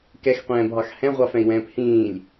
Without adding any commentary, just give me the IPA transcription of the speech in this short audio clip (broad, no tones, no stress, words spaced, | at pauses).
kɛxqʷɛ̃ːbʱɑx hɛ̃ʁʷɑfɛ̃i̯wɛ̃ːp hĩːlʲ